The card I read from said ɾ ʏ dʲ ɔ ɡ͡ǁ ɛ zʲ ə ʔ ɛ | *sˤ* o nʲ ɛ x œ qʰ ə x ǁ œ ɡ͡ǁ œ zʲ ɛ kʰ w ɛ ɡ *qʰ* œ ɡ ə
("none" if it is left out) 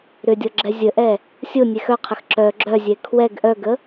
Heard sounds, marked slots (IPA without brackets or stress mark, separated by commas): sʲ, ʔ